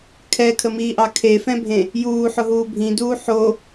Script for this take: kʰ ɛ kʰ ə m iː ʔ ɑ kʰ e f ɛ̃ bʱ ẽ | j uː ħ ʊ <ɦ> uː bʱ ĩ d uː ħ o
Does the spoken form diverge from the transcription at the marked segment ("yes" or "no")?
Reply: no